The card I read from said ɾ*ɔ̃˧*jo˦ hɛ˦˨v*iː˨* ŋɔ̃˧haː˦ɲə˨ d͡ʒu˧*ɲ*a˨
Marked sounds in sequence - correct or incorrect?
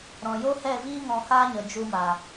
incorrect: ɔ̃˨, incorrect: iː˦, incorrect: m

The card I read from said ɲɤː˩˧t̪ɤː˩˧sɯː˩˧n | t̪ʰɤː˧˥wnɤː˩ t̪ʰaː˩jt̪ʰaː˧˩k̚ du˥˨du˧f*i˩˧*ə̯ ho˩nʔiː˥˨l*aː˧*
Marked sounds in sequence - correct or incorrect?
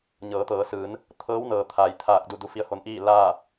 incorrect: i˧˥, incorrect: aː˥˨

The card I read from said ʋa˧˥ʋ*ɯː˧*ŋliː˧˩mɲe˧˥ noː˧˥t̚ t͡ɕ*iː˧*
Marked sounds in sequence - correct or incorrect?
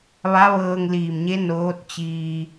incorrect: ɤː˧, correct

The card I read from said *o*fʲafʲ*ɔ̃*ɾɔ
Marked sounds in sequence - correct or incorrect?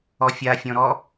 incorrect: ɔ, correct

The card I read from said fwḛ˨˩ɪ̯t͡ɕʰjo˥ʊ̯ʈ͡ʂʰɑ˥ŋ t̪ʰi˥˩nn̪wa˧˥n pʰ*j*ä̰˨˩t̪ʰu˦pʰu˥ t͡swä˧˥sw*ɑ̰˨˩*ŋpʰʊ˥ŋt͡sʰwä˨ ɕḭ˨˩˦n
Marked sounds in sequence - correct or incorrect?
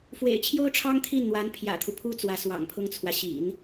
correct, correct

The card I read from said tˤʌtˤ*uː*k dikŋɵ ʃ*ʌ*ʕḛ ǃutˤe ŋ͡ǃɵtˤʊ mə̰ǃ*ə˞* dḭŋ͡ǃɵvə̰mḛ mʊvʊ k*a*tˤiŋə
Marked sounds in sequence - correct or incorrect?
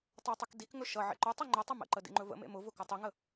incorrect: u, correct, incorrect: ə, incorrect: ʌ

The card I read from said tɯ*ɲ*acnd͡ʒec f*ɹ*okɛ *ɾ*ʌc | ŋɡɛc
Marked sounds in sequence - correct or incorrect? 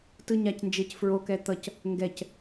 correct, correct, incorrect: t̪

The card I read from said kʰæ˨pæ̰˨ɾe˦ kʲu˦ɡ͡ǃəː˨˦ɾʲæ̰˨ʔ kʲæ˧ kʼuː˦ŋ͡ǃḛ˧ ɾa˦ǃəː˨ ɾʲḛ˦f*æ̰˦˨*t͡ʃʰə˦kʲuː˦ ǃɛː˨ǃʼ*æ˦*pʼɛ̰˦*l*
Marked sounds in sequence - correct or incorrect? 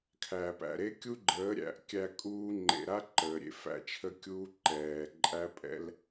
correct, correct, correct

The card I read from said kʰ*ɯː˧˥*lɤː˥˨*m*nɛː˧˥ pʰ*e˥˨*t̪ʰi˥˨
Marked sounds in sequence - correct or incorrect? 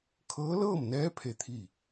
incorrect: ɤː˧˥, correct, correct

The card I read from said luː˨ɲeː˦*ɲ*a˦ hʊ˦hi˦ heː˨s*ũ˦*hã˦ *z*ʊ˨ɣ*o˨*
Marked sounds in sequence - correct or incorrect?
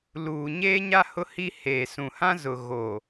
correct, incorrect: ũ˨, correct, correct

